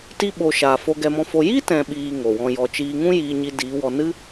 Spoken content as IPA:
t i˧ ɓ o˨ ʃ aː˨ f o˧ ɡ ɛ˧ m ɔ̃˧ f o˧ j i˦ t ɛ̃˨ ɓ iː˨ ŋ o˨ w ɔ̃˧ j ɔ˧ t͡ʃ iː˧ ŋ ũ˦ j iː˧ ɲ i˧ d iː˨˦ w ɔ˧ n ɨ˦

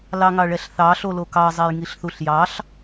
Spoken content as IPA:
l ɑ ŋ ɑ ɭ ɛ ɬ θ ɑ ɬ o l o k ɑ zˤ e j ŋ i ɬ θ u ɬ j ɑ ɬ

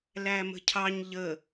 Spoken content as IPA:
l æ m ə̤ cʰ ɑ ɲ ʎ ə

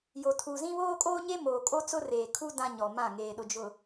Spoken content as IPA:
j o˨ tʰ uː˨ z ĩ˦ β oː˦ kʼ oː˦ ɲ e˦ m oː˨ kʼ o˦ t͡s ʊ˦ r eː˨ kʰ u˦ d ã˦ ɲ ɔ˨ m ã˦˨ ŋ eː˨ ɗ ʊ˨ d͡ʒ ʊ˨

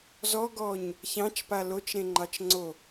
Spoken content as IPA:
z ɔ ɡ ɔ ɲ | ç ɑ̃ t͡ʃ p a l o t͡ʃ ɾ ẽ ŋ͡ǃ ɑ t͡ʃ ŋ͡ǀ o

